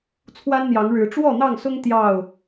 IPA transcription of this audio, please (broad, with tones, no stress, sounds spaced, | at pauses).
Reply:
t͡sʰ w a˦ n n̪ j ɑ˨˦ ŋ ɻ ɻ̩˨˦ ʈ͡ʂ w ɔ˥˨ n̪ ɑ˥˨ ŋ s ʊ˦ ŋ t̪ j ɑ˥˨ ʊ̯